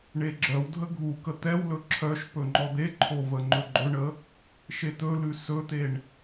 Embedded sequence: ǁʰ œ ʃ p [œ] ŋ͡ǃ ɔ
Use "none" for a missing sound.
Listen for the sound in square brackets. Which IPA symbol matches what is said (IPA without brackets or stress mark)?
ɵ